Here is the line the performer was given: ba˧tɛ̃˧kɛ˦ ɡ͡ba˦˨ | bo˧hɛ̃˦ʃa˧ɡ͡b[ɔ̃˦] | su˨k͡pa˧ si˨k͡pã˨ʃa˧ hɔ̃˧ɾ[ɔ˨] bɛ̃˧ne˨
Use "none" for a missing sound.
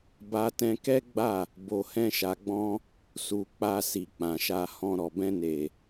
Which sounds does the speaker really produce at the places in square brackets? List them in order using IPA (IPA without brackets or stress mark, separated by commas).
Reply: ɔ̃˦, ɔ˨